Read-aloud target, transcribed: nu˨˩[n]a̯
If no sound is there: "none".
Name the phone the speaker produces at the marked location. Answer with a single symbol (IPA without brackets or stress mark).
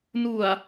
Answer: none